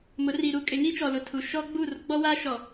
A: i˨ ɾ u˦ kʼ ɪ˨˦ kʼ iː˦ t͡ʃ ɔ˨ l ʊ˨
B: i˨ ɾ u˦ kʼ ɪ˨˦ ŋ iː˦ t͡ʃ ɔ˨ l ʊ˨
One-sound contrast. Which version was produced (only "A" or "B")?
B